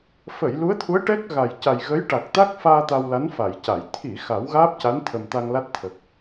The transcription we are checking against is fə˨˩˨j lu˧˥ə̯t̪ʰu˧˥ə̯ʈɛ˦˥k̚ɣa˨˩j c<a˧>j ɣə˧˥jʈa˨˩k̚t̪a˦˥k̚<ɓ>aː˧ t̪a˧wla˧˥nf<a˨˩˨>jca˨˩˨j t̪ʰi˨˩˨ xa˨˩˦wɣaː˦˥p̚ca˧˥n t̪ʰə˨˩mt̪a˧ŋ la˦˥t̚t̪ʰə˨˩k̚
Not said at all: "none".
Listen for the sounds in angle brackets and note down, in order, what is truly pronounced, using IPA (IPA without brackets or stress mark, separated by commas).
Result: a˨˩, f, a˨˩˨